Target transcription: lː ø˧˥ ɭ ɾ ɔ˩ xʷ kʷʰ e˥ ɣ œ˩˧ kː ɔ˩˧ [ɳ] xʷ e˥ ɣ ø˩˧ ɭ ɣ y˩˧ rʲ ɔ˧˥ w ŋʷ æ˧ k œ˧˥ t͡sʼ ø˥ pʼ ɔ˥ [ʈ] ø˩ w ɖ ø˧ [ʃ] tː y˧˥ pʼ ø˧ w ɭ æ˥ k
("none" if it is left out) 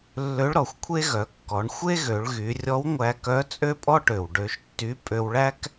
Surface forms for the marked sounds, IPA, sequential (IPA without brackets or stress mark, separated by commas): ɳ, ʈ, ʃ